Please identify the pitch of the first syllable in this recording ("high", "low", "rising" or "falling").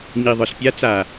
low